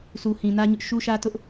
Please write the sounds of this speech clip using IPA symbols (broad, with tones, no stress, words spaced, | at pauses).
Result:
sʰu˨hĩ˨nä˦ɲʊ˦ʔ ʃu˦ʃä˦tʊ˦ʔ